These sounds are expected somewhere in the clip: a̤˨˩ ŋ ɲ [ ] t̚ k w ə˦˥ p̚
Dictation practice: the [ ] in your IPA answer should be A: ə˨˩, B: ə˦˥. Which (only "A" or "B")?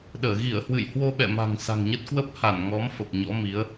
B